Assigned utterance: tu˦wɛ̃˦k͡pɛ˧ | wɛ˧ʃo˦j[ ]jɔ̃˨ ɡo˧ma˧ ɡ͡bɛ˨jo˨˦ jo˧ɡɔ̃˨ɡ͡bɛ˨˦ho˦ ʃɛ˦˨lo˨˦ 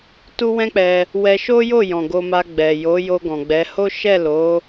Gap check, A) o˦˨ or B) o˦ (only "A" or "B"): A